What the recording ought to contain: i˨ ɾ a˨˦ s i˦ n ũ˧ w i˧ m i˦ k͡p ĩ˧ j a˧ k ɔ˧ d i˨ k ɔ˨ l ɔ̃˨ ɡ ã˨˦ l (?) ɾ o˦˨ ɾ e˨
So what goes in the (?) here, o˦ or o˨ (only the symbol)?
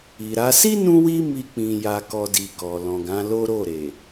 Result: o˦